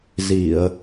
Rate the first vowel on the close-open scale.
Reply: close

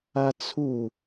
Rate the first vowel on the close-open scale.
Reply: open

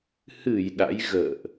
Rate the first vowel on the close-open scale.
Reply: close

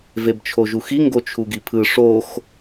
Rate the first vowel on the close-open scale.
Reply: mid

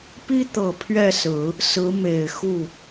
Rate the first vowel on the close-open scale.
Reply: close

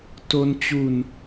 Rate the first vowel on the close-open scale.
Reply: mid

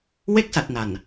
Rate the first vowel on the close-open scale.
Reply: mid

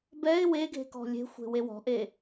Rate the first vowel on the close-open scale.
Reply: mid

